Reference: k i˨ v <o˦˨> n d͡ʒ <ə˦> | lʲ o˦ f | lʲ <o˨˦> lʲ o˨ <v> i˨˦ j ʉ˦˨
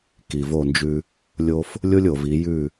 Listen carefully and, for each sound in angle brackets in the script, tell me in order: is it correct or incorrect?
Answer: correct, incorrect: ʉ˦, incorrect: o˦, correct

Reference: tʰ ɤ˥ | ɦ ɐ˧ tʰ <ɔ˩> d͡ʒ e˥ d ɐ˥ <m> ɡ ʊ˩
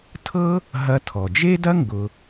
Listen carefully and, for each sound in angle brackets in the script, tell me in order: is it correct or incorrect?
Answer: correct, incorrect: ŋ

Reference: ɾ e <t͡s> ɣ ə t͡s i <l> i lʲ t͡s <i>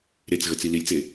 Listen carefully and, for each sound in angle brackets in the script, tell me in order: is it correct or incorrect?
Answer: correct, correct, incorrect: e

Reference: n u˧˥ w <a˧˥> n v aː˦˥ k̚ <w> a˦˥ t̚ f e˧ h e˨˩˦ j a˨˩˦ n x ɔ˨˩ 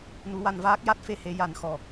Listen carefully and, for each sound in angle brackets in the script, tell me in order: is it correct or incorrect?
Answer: incorrect: a˧, incorrect: j

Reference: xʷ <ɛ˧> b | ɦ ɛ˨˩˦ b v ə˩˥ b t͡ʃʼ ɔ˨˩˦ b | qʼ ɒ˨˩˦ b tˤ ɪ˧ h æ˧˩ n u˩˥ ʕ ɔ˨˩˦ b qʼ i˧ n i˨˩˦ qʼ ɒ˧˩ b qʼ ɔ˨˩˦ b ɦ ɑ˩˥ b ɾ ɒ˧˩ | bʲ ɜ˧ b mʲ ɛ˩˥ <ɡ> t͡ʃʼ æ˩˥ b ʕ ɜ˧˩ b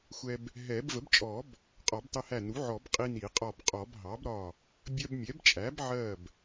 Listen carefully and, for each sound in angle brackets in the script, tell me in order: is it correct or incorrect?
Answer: correct, incorrect: b

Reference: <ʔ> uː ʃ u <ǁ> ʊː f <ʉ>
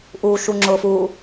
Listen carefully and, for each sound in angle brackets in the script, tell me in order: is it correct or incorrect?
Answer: correct, incorrect: ŋ͡ǁ, incorrect: u

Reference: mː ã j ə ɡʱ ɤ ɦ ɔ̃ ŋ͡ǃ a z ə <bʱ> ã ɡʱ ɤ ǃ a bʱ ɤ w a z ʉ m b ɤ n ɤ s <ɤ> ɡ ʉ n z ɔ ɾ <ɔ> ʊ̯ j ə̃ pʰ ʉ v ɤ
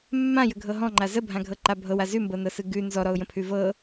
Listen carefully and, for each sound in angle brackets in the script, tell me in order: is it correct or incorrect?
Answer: correct, incorrect: ɯ, correct

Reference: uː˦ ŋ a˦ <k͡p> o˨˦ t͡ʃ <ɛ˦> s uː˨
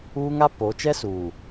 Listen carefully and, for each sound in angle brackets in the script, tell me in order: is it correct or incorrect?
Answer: incorrect: p, correct

